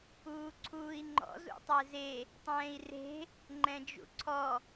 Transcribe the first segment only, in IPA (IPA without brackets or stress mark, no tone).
uː